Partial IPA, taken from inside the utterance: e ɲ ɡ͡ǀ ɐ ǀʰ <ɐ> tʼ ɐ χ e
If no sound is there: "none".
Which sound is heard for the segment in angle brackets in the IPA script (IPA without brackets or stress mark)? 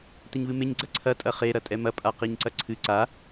ɐ